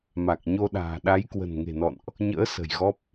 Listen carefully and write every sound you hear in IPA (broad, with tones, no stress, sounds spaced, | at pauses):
m a˨˩ k̚ ɲ o˧ ɗ a̤ː˨˩ ɗ a˨˦ j k w ə̤˨˩ n ŋ e̤˨˩ n ɔ̰˧˨ n ʔ | ɲ ə̰ː˧˥ s ə̤˨˩ j ɣ ɔ˦˥ p̚